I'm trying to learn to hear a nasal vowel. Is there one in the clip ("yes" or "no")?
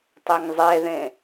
yes